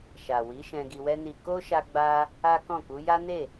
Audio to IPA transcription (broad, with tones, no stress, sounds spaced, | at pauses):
ʃ a˨ w i˨˦ ʃ ɛ̃˧ ɡ i˧ w ɛ˦ n i˧ k o˦ ʃ a˦ ɡ͡b a˦ | a˦ k ɔ̃˦˨ k u˨˦ j a˦ n e˦˨